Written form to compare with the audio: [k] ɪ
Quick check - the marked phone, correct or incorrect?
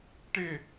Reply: incorrect